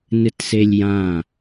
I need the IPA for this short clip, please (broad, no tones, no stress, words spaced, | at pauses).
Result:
nɨtselʲjã